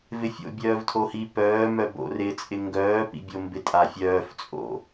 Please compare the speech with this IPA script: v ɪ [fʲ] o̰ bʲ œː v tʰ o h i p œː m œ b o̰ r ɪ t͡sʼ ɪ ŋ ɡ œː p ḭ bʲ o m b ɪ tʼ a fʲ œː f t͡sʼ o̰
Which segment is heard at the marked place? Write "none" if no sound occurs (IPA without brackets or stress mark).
fʲ